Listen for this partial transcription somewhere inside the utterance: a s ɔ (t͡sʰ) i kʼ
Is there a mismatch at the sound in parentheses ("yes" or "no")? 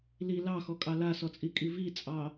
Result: yes